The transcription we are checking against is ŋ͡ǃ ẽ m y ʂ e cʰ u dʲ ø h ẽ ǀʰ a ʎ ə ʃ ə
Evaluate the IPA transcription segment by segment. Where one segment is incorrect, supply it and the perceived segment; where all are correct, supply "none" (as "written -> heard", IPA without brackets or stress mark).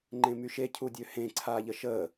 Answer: ʂ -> ʃ